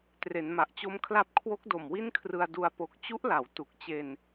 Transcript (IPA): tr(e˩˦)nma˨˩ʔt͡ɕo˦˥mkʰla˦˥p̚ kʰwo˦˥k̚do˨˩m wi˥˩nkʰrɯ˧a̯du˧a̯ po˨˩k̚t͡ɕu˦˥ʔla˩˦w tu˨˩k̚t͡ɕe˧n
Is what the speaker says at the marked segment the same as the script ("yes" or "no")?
yes